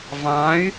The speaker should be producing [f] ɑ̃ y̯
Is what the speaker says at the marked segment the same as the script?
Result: no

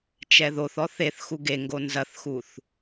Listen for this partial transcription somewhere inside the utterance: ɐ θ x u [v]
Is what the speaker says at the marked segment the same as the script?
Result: no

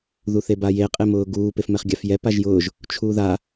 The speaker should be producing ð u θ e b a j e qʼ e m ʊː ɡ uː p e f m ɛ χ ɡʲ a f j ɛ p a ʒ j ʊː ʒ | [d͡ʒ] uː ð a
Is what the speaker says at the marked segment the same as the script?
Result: no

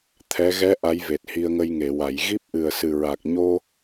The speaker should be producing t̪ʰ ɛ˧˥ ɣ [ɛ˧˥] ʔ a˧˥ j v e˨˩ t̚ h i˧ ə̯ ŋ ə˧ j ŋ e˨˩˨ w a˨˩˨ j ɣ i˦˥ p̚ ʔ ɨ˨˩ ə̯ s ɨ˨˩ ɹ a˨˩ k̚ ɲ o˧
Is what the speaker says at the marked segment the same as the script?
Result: yes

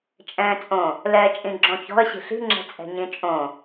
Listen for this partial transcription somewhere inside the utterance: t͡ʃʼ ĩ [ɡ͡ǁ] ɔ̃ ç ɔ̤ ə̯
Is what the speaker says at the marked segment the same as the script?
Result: yes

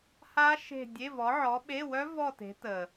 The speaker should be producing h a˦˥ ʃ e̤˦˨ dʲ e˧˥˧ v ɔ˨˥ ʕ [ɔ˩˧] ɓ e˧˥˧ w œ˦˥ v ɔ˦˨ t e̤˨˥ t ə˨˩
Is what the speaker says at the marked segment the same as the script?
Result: no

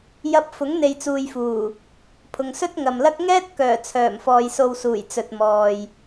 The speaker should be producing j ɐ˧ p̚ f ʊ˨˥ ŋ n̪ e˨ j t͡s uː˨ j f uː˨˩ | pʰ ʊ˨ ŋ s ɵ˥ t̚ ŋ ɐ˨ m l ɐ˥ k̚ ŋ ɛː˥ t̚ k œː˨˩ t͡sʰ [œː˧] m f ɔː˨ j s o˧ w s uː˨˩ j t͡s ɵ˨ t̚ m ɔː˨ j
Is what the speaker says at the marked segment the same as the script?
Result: no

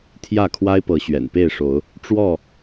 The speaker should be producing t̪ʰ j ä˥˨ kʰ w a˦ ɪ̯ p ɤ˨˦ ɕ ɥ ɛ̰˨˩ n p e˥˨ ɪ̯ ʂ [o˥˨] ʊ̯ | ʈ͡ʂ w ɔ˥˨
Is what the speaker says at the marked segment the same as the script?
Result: no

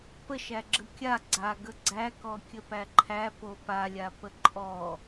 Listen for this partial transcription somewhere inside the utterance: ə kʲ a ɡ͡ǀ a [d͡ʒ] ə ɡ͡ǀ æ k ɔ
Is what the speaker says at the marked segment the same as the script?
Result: no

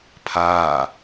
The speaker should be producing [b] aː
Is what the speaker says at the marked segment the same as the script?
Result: no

